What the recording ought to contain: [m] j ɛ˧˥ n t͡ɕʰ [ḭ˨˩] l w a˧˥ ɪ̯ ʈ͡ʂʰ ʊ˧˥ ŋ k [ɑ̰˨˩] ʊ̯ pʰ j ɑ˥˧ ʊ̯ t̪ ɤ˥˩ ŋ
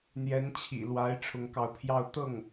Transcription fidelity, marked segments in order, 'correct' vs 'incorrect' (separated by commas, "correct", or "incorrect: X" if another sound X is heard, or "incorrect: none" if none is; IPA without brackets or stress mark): incorrect: n̪, correct, incorrect: ɑ˧˥